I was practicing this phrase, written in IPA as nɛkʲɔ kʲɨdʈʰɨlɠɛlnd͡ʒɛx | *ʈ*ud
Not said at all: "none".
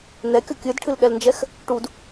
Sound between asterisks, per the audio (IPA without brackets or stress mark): ʈ